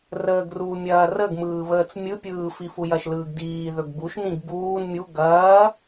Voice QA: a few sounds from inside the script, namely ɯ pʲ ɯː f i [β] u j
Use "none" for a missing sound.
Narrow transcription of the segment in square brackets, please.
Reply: f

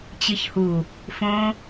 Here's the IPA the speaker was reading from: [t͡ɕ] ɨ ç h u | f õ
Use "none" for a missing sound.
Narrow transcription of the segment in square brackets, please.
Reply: t͡ɕ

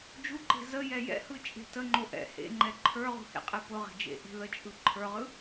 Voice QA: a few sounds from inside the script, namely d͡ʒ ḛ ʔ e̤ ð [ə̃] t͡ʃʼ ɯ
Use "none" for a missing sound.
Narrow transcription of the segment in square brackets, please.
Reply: ə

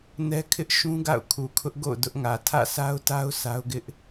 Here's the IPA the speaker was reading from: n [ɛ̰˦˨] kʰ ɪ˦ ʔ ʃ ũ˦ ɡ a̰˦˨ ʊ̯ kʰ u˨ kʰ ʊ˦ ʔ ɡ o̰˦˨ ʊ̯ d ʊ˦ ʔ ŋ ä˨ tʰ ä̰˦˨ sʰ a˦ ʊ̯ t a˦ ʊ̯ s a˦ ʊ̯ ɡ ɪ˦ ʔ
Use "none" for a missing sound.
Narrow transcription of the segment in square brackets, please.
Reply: ɛ˦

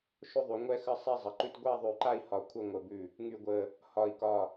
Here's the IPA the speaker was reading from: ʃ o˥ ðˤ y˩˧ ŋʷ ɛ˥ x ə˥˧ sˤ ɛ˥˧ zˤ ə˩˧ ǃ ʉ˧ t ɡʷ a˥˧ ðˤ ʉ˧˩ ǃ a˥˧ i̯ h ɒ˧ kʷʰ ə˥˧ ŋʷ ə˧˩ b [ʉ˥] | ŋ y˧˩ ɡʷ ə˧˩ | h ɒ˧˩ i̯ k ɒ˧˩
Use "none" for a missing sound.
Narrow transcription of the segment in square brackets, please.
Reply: ʉ˧˩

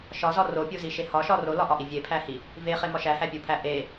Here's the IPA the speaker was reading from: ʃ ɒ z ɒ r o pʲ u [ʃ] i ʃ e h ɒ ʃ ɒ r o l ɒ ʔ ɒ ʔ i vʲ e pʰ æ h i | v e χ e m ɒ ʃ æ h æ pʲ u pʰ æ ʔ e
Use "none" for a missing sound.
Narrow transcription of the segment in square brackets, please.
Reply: z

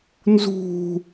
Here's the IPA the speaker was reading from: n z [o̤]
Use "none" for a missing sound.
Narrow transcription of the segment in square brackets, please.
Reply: ṳ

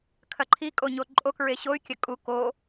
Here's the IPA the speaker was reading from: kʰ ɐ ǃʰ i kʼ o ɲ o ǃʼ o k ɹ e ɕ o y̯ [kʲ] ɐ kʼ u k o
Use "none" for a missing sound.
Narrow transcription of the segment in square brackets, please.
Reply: kʲ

